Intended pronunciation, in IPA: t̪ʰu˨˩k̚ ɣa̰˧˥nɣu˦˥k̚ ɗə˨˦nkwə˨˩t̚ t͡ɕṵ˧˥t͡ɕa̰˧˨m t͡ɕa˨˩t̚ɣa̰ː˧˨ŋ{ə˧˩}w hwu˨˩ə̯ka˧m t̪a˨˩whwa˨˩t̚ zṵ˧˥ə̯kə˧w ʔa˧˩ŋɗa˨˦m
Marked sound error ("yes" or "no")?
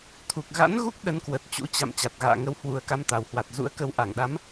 yes